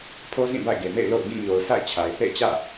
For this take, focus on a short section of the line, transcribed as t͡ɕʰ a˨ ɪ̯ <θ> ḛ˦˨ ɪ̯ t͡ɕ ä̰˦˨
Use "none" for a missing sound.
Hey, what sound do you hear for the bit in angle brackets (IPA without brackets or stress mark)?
θ